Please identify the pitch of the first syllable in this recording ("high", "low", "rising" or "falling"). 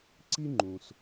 high